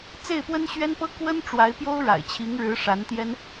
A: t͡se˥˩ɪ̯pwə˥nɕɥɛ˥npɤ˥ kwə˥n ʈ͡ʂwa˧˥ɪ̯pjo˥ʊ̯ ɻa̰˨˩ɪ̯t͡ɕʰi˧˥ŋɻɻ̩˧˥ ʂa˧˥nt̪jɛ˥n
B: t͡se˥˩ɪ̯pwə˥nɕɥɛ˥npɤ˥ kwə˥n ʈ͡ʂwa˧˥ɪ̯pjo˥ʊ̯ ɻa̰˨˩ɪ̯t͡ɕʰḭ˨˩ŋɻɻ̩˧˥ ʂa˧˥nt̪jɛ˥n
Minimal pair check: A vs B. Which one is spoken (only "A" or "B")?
A